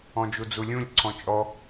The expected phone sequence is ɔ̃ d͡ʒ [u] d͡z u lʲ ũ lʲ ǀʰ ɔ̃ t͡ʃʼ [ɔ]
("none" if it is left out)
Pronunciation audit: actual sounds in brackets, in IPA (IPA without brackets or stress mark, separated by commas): u, ɔ